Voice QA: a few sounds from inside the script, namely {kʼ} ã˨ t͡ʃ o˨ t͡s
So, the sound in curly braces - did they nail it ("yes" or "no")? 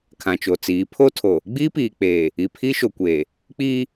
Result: no